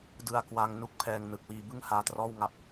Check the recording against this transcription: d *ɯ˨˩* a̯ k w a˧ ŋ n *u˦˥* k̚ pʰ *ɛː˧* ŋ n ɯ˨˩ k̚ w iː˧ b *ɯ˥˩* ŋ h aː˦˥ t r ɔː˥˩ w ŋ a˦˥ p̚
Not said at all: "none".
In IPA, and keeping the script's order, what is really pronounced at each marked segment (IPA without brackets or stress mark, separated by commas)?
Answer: ɯ˧, u˦˥, ɛː˧, ɯ˥˩